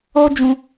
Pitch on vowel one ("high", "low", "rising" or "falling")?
high